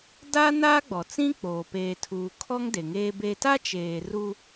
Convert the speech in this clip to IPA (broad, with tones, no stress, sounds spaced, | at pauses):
d aː˦ n aː˦ ɡ͡b ɔ˨ t͡s ĩ˦ k͡p oː˨ p eː˨ tʰ uː˨ kʰ ɔ˦ ŋ d e˨ ŋ eː˦ b e˦ t a˦ t͡ʃ eː˨ r u˦